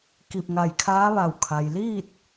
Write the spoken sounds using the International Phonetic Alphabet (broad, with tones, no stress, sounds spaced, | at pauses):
k i˧˩ p̚ ŋ a˧˩ j kʰ aː˧˥ ʋ a˧˩ w kʰ a˩ j l iː˥˨ t̚